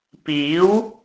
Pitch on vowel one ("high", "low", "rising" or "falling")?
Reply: rising